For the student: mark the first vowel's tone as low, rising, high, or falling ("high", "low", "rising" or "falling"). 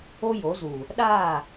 high